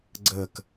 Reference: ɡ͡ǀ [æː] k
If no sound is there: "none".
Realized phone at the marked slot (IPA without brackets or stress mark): əː